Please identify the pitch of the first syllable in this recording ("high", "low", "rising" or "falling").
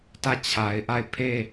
falling